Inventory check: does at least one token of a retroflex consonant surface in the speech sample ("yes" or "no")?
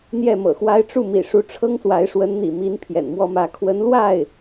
yes